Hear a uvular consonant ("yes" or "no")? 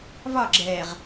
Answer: yes